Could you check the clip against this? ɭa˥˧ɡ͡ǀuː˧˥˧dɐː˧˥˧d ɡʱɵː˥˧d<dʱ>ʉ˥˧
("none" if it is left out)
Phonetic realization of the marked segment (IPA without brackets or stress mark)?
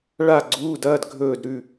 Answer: ɾ